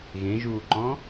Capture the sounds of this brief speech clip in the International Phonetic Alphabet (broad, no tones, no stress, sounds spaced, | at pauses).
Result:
ɣ ẽ ʒ uː ǃ ɔ̃